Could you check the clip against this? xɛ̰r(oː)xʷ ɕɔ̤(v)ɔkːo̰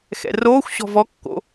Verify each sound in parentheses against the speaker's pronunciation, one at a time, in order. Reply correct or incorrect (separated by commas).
correct, correct